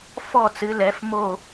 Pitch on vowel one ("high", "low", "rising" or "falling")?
falling